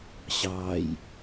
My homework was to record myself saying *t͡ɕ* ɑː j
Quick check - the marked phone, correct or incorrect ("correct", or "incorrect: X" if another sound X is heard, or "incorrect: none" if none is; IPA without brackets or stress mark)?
incorrect: ɕ